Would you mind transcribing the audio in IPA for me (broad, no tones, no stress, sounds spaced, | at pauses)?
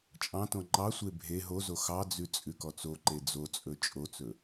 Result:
t͡ʃʼ ɑ̃ t õ ŋ͡ǃ ɑ sʷ e bʱ e ɦ o z o x ɑ d͡z ʉ t͡sʼ ʉ k ɔ t͡s o ǃ e d͡z o t͡sʼ ɵ t͡ʃʼ o t͡s ɵ